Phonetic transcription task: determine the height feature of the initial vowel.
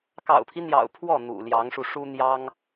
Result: low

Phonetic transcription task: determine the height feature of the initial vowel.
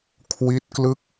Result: high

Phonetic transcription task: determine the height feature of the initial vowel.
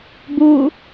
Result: high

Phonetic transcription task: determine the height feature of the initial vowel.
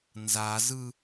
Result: low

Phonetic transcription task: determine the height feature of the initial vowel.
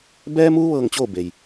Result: mid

